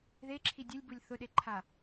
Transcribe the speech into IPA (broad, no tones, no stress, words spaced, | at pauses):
ðeǁʰi dʲɨlʲbulʲ θʊɗeǃʰa